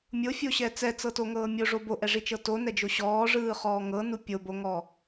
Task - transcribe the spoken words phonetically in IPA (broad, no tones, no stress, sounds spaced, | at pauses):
mʲ o fʲ o ɕ ɛ t͡s ɛ t͡s ɤ t o ŋ ɤː mʲ o ʐ o b o ʔ ɛ ʐ i t͡ʃ ɤ t o n ɛ d͡ʒ o ɕ ɔː ʐ ɯː χ ɔː ŋ ɤ n u pʲ o b o ŋ ɔ